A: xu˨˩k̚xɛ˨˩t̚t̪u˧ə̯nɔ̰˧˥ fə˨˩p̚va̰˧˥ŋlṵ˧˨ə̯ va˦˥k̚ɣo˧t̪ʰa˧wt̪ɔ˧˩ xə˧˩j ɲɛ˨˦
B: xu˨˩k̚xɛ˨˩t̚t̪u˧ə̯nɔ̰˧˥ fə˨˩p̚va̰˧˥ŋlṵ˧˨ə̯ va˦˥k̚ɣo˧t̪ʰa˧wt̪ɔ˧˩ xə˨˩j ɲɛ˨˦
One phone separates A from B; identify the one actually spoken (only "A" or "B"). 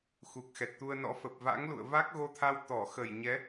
A